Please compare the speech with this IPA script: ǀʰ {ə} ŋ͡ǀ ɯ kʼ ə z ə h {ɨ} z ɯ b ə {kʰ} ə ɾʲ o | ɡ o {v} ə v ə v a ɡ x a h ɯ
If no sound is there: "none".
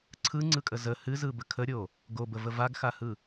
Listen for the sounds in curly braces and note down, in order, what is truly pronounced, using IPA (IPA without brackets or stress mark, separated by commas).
ɯ, ɨ, kʰ, b